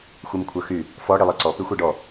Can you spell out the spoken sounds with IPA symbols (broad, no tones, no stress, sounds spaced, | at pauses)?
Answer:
xʷ i m kʷʰ œ x y | f ɔ ɽ i lˠ ɛ ǀ ɔ p y xʷ ɛ ɖ ɔ